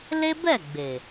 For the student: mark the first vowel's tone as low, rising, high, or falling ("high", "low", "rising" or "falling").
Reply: high